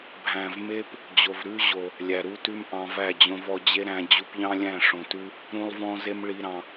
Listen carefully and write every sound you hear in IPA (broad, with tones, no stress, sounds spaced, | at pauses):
bʱ æ̃˨ v m e˧ p | d͡ʑ o˨ v ɾ ʉ˦ ʑ o˨ | lʲ æ˨ ɾ u˦ t ʉ˦ m ʔ ɑ̃˧ v æ˦˨ d͡ʑ õ˧ v ɔ˧ d͡ʑ e˦ ɾ æ̃˧ d͡ʑ u˧ p ʎ ɑ̃˦ lʲ æ̃˦˨ ʂ õ˨ t ʉ˧ | ɾ ũ˦ lˠ v ɔ̃˦ z e˦ m ɭ i˧ ɾ ɑ̃˧